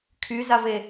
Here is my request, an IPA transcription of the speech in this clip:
kʰ y z a v e

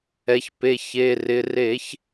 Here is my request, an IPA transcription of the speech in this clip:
ɛ˩˧ ç p e˩˧˩ ç e˩˧˩ r ɪ˩˧˩ r e˧˩˧ ç

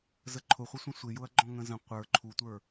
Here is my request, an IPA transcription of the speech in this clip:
z ə ǃʰ ʊ χʷ ə sʷ ə̃ sʷ ɪ j ʊ ɐ̯ ɡ͡ǃ ɔ̃ ŋ ə̃ z ə̃ qʷ ə˞ ǃʰ u tʷ ə˞

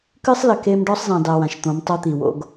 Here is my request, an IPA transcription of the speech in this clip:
k ɨ˦ sˤ l ɘ˨ k e˦ m ɖ ɔ˦ sˤ z ẽ˨ dˤ e˨ w ã˨ ʃ t̪ õ˨˦ m tˤ o˦ t̪ i˨ w o̰˦ ɡ

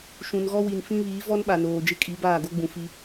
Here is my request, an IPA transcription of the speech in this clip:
ʃ ũ˨ n ɣ ɔ˦ w i˨ n f ĩ˦ β iː˨˦ v ɔ˦ n ɓ a˨ n oː˨ d͡ʒ ɪ˦ kʼ i˨˦ b aː˦˨ ɡ o˦ ɡ͡b ũ˨ f i˦

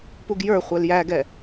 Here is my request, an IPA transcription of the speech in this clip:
p u ɡ j ə˞ χʷ ɛ l j æ ɡ ɛ

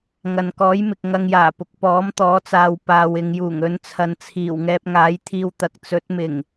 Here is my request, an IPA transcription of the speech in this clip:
ŋ ɐ˨ n k ɔː˨˥ j m ɪ˨ k̚ ŋ ɐ˧ ŋ j aː˨˩ p ʊ˨ k̚ p ɔː˨˥ m t̪ ɔː˨˥ t͡s aː˨ w p aː˨ w ɪ˨ ŋ j uː˨˩ ŋ ɵ˨˧ n t͡sʰ ɐ˨ n t͡sʰ iː˨˩ w ŋ ɛː˧ p̚ ŋ aː˨˥ j t̪ʰ iː˧ w t̪ ɐ˨˥ k̚ t͡s ɵ˨˥ t̚ m ɪ˨˩ ŋ

